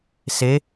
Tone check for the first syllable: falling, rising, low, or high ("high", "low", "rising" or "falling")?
rising